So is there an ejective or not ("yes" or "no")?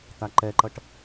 no